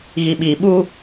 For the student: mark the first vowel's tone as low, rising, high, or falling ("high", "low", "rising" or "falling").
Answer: low